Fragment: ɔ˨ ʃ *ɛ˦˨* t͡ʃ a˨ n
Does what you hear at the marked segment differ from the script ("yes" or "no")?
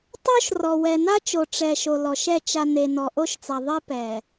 no